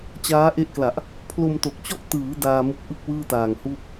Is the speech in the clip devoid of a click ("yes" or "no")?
yes